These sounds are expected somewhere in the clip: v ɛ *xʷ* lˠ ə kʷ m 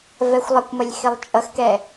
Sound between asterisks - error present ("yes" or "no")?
no